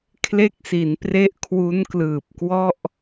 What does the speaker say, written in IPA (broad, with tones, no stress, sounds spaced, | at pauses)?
kʰ l e˦˥ k̚ s i˩˦ n p r e˦˥ ʔ kʰ w u˦˥ n k l ɯː˨˩ p̚ k w ɔ˥˩ ʔ